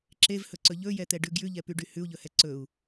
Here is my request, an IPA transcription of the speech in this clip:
ǁ e v h ɵ ǀ ɵ ʎ ɵ j ɛ t̪ ɛ ɖ ʉ ɡ j ʉ ʎ ɛ p y ɖ y h ʉ u̯ ʎ ɵ h ɛ ǀ ɵ u̯

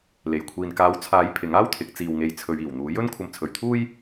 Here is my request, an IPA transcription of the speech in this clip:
l e˨˩ j kʷʰ iː˨ n k aː˨˥ w t͡sʰ aː˨˥ j pʰ ɪ˨˥ ŋ aː˥ w t̪ʰ ɪ˨˥ k̚ t͡s iː˨ w ŋ e˨˧ j t͡sʰ ɵ˨˧ ɥ iː˨˩ w n̪ uː˨˥ j ɵ˥ n kʷʰ ɐ˧ m t͡sʰ ɵ˨ ɥ t̪ʰ uː˥ j

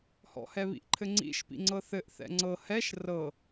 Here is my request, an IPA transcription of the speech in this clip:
h ɔ̰ h ɛ β ḭ ʔ ǃʰ ɘ ŋ͡ǀ ḭ ʃ p ḭ ŋ͡ǀ ɤ θ ɘ ʔ θ ɛ̰ ŋ͡ǀ ɤ h ɛ ʃ r ɤ

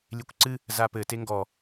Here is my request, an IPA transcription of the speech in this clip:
lʲ e kʷ ǀ ɨ | z a p ɘ t e ŋ ɡ ɔ

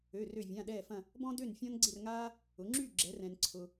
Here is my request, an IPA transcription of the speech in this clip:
ø˩˧˩ r ø˧˩ vʲ ã˩˧˩ ɗ ɛː˧˩ f ɐ̃˧˩ | b ɔ̃˥ d ø˥˨ n fʲ ɔ̃˥ n ɡ͡ǀ ɪ˥˨ r ŋ aː˥ | ʊ˩˧ ŋ͡ǁ y˥˨ ɡ͡ǁ ɛ˩˧ r ɛ̃˩ n ǀʰ ʊ˩

